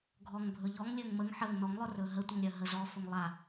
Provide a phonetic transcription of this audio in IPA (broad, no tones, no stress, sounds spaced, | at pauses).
ɡʱ ɔ ŋ bʱ ɵ ʎ ɔ ŋ lʲ ɵ ŋ m ə ŋ ħ ə ŋ n ɔ ŋ lˠ ɵ r ɵ ɦ ə tʷ ə ŋ ɾʲ œ ɦ ə z ɔ f ɵ ŋ lˠ a